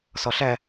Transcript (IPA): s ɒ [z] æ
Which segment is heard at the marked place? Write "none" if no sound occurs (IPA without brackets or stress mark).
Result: ɬ